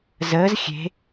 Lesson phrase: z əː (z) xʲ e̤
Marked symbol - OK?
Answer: yes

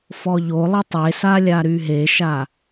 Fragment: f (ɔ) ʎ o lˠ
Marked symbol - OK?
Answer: yes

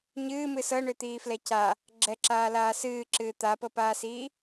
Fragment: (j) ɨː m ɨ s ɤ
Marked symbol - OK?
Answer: no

